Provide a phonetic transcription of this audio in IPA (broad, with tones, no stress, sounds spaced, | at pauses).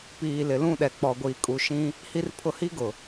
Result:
p iː˨ l ɪ˨ l ũ˦˨ ɗ ɛ˨ k͡p ɔ˨ ɡʷ iː˨ kʼ u˨ ʃ ĩ˦ | h i˦ r pʰ ʊ˦ h i˦ ɡ ʊ˨